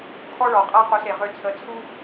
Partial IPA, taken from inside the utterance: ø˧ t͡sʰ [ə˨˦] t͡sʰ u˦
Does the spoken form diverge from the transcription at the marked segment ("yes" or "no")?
no